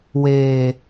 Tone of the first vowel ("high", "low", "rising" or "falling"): low